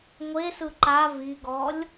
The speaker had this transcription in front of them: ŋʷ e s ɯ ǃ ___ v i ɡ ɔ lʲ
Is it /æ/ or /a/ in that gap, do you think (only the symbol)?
a